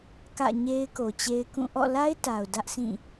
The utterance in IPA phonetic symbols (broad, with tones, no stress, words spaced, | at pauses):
kä̰˦˨ɲe˦ɪ̯ ko˨t͡ɕe˦ɪ̯kũ˦˨ ʔɔ̰˦˨la˦ɪ̯ta˨ʊ̯ dä˦ʔsĩ˦˨